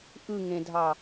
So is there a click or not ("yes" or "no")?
no